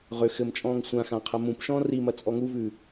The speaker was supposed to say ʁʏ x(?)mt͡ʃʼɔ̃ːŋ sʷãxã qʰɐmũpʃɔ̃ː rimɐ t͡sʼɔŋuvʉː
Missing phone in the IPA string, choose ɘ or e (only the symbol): ɘ